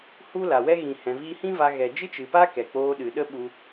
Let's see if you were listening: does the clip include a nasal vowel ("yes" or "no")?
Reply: yes